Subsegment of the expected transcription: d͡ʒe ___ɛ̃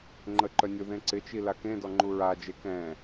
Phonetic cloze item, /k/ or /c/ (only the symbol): k